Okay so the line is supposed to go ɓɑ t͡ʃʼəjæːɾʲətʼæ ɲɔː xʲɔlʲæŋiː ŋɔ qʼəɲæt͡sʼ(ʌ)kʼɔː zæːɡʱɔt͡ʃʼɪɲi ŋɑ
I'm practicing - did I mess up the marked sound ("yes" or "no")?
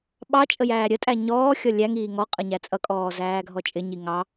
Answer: no